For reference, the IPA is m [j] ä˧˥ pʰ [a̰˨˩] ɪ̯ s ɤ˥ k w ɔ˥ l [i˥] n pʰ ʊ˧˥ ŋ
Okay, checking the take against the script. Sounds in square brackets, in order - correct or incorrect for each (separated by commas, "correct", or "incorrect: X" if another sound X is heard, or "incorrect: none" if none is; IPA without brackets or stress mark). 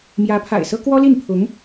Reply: correct, correct, incorrect: i˥˩